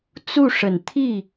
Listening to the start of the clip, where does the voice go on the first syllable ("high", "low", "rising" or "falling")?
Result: falling